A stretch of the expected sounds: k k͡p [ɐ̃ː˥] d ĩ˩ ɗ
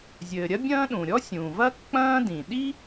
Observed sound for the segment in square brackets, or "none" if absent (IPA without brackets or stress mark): ɐ̃ː˥